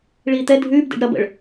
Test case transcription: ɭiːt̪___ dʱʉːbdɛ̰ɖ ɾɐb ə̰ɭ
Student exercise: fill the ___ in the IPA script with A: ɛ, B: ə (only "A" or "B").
A